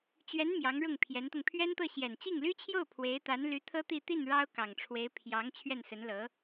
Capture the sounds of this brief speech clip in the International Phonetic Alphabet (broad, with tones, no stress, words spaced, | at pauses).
t͡ɕɥɛ˧˥n mjɑ˧˥ŋɻʊ˥˩ŋpʰjɛ˧˥nt̪ʊ˧ŋ pʰɥɛ˥nt̪ɤ˥˩ ɕjɛ˨˩nt͡ɕi˥˩ŋly˥t͡ɕʰjo˥˩ʊ̯ pʰwe˧˥ɪ̯ t̪a˧˥nly˧˥ t̪ʰɤ˥ t̪i˥˧ t̪i˥˩n ɻɑ˥ʊ̯kɑ˨˩ŋʈ͡ʂʰwe˧˥ɪ̯ pʰjɑ˧˥ŋ t͡ɕʰɥɛ˥˩nsə˧˥nlɤ˧˥